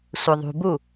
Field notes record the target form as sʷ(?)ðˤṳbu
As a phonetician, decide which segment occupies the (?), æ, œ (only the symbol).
œ